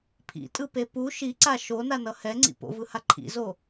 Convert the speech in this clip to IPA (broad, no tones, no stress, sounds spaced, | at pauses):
pʰ ḭ tʼ ɯ p e p u ʃ i ǀ a ʃ o n a n ʌ h ɛ ŋ͡ǀ ḭ p o̰ v ɯ h a ǃʰ ḭ z o